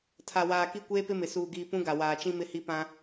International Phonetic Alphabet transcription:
tʰ a˨ w aː˨ k i˦ kʷ eː˦ p ɪ˦ m ɪ˨ s uː˨ ɡ iː˨ p ũ˦ ɡ a˨ w aː˨ t͡ʃ ĩ˦ m ɪ˦ h i˦ p ã˦

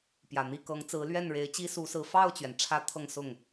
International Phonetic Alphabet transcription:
p j ä˨˩ n̪ i˥˩ k ɤ˧˥ ŋ t͡s ɹ̩˧˥ l ɥ ɛ˥˩ n ɻ e˧˥ ɪ̯ t͡ɕ i˥ s u˧˥ s ɹ̩˧˥ f ɑ˥˩ ʊ̯ t͡ɕ ɥ ɛ˩ n ʈ͡ʂʰ ä˧˥ t̪ʰ ɤ˥˧ ŋ s ʊ˥˩ ŋ

